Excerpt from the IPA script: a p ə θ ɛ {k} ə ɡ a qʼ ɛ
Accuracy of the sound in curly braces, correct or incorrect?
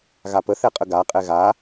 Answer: incorrect